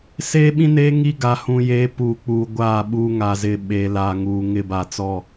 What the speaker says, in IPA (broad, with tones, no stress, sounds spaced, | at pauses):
s eː˦ ɓ ĩ˦ n eː˦ ŋ i˦ ɡ a˨ h ũ˨ j eː˨˦ p uː˨ k͡p uː˨ ɡʷ aː˦˨ ɓ uː˦ ŋ a˨ z ɪ˦˨ ɓ eː˨ l a˨ ŋ uː˨ ŋ ɪ˦˨ b a˨ t͡s ɔ˦˨